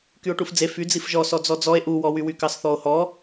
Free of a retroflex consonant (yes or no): no